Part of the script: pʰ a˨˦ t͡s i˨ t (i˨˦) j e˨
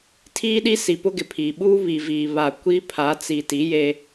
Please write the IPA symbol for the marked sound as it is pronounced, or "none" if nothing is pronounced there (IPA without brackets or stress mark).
i˨˦